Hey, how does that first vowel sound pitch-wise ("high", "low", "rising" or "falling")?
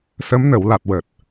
rising